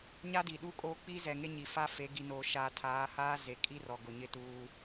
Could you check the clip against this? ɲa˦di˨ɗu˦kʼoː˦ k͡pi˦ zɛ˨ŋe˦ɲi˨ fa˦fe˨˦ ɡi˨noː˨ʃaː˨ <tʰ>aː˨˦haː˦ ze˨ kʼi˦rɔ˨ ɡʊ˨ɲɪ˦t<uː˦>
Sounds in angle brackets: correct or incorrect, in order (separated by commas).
correct, correct